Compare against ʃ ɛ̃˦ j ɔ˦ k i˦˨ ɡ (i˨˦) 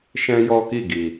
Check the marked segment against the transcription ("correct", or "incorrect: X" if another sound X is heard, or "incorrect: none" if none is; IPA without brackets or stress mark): incorrect: i˨